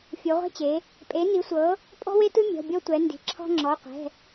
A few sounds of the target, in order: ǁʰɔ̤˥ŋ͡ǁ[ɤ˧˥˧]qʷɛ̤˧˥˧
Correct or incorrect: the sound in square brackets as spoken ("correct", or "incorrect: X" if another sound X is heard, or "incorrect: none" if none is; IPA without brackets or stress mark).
incorrect: ɔ˧˥˧